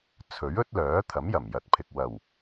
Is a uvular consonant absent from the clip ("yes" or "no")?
yes